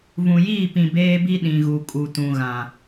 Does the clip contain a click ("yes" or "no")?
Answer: no